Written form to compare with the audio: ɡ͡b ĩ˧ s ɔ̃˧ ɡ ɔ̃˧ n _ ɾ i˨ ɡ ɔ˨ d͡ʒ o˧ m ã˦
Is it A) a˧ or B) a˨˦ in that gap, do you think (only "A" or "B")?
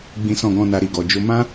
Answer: A